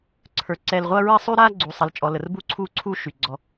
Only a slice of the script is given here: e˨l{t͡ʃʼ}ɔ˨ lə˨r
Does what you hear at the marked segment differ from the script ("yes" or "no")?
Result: no